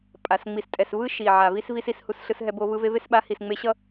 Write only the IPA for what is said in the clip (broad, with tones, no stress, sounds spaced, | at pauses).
pʼ a˨ s ŋ͡m i˨ s tʼ ɛ˨ s v ɯ˦ ʃ i˨ ʕ a˨ v i˦ s v i˦ s i˦ s h u˦ s ɬ ɯ˦ s ɦ ɛ˦ b o˦ v ɯ˦ v e˦ v e˦ s ɓ a˨˦ h i˨ s ŋ͡m e˦ ɕ ʌ˦